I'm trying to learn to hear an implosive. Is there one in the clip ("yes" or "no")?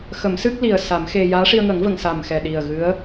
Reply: yes